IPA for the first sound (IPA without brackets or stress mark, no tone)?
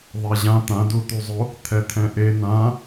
ðˤ